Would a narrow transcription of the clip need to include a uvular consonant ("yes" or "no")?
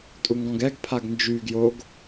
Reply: no